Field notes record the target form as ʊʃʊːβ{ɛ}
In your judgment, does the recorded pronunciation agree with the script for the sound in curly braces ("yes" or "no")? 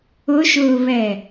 yes